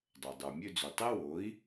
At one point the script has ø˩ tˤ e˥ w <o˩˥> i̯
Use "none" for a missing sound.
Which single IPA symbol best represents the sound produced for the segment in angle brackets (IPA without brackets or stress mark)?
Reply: o˩˥